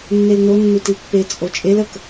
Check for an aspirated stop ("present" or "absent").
absent